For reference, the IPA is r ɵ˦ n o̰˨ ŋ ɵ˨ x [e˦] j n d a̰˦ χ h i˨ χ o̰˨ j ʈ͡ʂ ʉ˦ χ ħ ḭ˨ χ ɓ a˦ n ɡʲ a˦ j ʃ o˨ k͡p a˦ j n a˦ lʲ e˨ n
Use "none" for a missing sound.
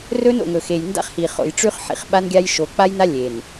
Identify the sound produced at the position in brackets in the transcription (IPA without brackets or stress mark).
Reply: e˨